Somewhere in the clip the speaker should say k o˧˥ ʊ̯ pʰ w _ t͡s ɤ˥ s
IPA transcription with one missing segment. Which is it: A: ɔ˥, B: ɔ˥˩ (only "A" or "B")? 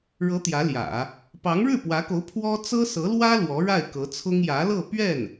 A